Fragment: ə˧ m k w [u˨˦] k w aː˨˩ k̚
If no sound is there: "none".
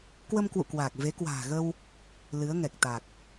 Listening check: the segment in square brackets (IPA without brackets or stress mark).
ṵ˧˨